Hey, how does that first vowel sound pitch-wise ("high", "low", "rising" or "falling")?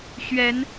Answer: rising